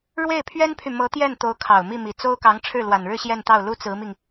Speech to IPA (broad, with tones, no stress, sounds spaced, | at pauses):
ɻ w e˥˩ ɪ̯ pʰ ɥ ɛ˥ n pʰ y˨ m ɤ˧˥ t̪ j ɛ˥˩ n t̪ o˧˥ ʊ̯ kʰ ɑ˨˩ ʊ̯ m i˥˩ m i˨˩ t͡s o˥ ʊ̯ k ɑ˧˥ ŋ ʈ͡ʂʰ ɻ̩˥˩ l w a˨˩ n ɻ ɻ̩˥˧ ɕ j ɛ˥˧ n t̪ ɑ˥˩ ʊ̯ l u˥ t͡s ɹ̩˧˥ m i˧ ŋ